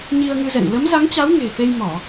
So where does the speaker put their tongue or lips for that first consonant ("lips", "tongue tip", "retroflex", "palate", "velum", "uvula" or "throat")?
palate